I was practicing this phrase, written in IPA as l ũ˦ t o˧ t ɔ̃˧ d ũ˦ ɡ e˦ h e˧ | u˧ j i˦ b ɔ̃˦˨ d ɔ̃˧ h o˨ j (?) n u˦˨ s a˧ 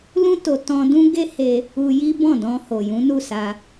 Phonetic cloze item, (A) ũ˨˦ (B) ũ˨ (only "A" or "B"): A